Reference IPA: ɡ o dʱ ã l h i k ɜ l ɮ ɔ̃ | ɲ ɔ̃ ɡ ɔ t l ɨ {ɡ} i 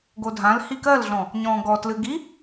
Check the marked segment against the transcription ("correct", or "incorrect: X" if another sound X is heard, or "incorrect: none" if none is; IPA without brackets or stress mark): correct